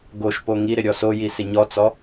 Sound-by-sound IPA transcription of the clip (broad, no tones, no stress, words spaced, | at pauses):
ɡoʃpo ŋiɾɪ ɾʲɔsoji sɪɲɔt͡sɔ